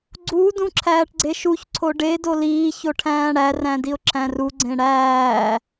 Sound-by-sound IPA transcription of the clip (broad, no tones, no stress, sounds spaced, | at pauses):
ɡ͡ǀ u d ũ ǁʰ æː ʈ ɡ͡ǀ e ʃ u ç ǀʰ o ɖ e d o l iː ç o ʈʰ æ̃ː ɽ æ r æ̃ d i ʊ̯ ǁʰ æ̃ r u ɡ͡ǀ ẽ ɽ æː